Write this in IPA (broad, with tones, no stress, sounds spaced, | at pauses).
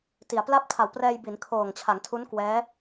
t i˩˦ a̯ p l a˥˩ p̚ tʰ a˨˩ w p r ɛː˧ j b i˩˦ n kʰ oː˨˩ ŋ t͡ɕʰ a˩˦ ŋ tʰ u˦˥ n k w ɛː˦˥